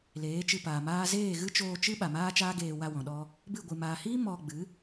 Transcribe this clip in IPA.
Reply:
l eː˨˦ t͡ʃ ɨ˧ p aː˨ m aː˦ z eː˦˨ ɣ ɨ˦ t͡ʃ oː˧ t͡ʃ ɨ˦ ɓ a˨ m aː˦ t͡ʃ aː˦ ɡ eː˧ w a˧ w ɔ̃˨ ɗ ɔ˧ | b ɨ˦˨ ɡʷ ɨ˨ m aː˨ h iː˦ m ɔ˧ ɡ͡b ɨ˨˦

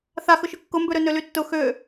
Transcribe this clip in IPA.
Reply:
θ a x ʊ ʃ ʊ kː ʊ m b ø ɾ ø n ø l y tː ʊ x ø

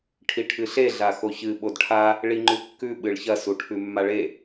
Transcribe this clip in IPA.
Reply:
ʈʰ i ʈʰ ɨ ɬ e ɮ a x o ç ɨ ɓ o d ʈʰ a | ɭ i ŋ͡ǃ ʉ kː ʉ ɓ ɨ ɭ ç ɐ s u ʈʰ ʉ mː a ɭ e

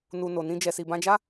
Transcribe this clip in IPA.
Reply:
n u˧ n o˨ n ĩ˧ d͡ʒ ɛ˨ s i˨ b ã˧ d͡ʒ a˦

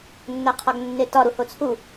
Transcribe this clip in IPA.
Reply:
nː æ qʰ ɒ ɡ nː e t ɒ ɾ u h o t͡sʰ u

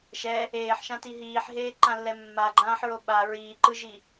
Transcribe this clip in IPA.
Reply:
ʃ ɛ | eː ħ ʃ ã t i ɦ iː ħ ɦ eː ǃ ã lː ɛ mː a ɡ͡ǃ ãː ħ ɹ o ɓ a ɹ iː ǃ ɯ ʒ i

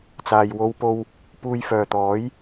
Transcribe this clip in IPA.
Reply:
t͡s aː˨ j w o˧ w p o˧ w | p uː˧ j f œː˨ t̪ ɔː˨˥ j

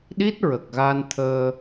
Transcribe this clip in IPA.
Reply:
ɗ i˦˥ t̚ ɹ ə˨˩ k̚ ɣ a˧ n t̪ʰ əː˧

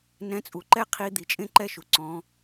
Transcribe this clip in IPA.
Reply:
n ɛ̃˨˦ t͡sʼ u˩ ǃ ɛ˦ qʰ i˨˦ d̪ i˩ t͡ʃʼ ẽ˦ ǃ ɛ˦ ʃ u˩ ǀ ɔ̃˨˦

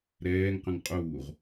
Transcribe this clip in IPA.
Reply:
ɾ ɛː ŋ q ə̃ ŋ qʼ uː ʁ

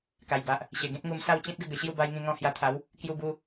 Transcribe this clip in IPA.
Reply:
k a˨˩ j b a˨ ʔ | ɕ e˨˩ ɡ ẽ˦ t̚ ŋ u˧ m s a˥˧ w t͡ɕ ĩ˦ t̚ ɡ ə˥˧ ɡ ə˨˩ ɕ j u˥˧ b a˧ j ŋ ĩ˧ ŋ ɔ̃˧ h j a˧ t̪ʰ a˨˦ w | k j u˧ b u˧

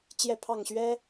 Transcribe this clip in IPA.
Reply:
t͡ɕ j ɛ˥˨ pʰ ɑ˥˨ ŋ ɕ ɥ ɛ˦

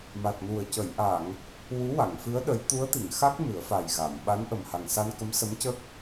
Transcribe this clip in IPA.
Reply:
m a˨˩ t̚ n u˨˩ ə̯ c ə˨˩˨ j ʔ a˨˩˨ ŋ | w u˧˥ w a˨˩˨ ŋ f ɨ˧˥ ə̯ ɗ ə˧˥ j t̪ u˧˥ ə̯ t̪ i˨˩˨ ŋ x a˦˥ k̚ m ɨ˨˩˦ ə̯ f a˨˩ j ɣ a˨˩˨ m ɓ a˧˥ n ʔ ə˨˩ m h a˨˩ ŋ s a˧ n k ə˧˥ m s ə˧˥ m c ə˦˥ k̚

